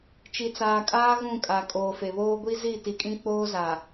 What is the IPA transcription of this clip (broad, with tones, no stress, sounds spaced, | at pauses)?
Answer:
t͡ʃ i˨ t͡s aː˨ kʼ aː˦ ɣ ũ˦˨ kʼ a˨ kʼ oː˨ f e˨ β oː˦ ɡʷ i˦ z i˦˨ t i˨ kʼ ĩ˦ k͡p oː˦ z a˨